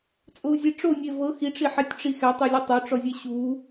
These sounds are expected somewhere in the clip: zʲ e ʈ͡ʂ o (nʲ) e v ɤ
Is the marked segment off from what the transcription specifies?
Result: no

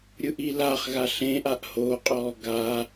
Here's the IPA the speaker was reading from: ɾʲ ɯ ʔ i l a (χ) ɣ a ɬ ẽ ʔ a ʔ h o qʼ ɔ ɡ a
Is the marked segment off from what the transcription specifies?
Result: no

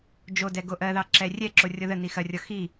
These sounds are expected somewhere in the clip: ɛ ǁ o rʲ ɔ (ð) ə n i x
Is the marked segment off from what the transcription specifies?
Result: no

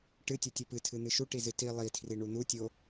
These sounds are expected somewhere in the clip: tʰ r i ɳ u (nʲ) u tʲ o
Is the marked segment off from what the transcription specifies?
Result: yes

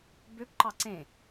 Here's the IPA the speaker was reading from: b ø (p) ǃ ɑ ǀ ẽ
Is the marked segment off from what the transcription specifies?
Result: no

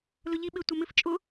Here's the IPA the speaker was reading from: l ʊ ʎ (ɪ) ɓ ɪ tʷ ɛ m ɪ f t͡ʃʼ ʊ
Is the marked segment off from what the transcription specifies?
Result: yes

